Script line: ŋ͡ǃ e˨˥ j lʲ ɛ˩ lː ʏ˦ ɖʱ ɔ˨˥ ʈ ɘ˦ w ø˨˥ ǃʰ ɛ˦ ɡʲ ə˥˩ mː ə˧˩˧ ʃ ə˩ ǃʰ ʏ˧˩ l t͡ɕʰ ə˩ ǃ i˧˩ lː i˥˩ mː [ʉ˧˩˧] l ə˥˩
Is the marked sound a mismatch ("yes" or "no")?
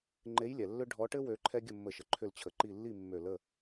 yes